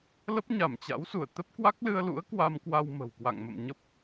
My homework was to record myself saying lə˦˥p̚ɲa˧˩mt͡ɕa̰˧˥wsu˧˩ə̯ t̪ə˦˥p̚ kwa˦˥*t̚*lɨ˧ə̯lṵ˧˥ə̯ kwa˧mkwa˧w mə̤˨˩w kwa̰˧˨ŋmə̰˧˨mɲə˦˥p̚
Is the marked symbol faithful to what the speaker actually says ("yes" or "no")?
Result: no